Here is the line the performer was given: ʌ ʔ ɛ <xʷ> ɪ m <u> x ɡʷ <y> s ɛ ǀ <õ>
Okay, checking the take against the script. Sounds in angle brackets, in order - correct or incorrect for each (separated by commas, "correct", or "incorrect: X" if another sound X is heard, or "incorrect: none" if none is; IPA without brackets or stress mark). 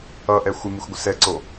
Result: correct, correct, incorrect: ɪ, incorrect: o